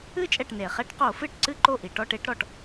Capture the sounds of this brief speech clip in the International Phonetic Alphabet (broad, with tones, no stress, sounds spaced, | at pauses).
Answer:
ɨ˥˧ t͡ʃʼ ɛ˥˩ ʈ n e˩ χ ɛ˦˥ ʈ q o˧˩˧ f ɨ˥˩ ʈ ǀ ɨ˥˧ ǃ o˥˩ ʔ i˩ ʈ ɔ˥˧ ʈ e˦˥ ʈ ɾ ɔ˩ ʈ